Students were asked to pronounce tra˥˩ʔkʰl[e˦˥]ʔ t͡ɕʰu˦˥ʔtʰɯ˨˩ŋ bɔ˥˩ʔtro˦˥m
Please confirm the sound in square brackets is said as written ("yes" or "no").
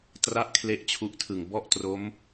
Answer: yes